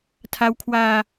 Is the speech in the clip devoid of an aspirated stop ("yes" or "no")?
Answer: no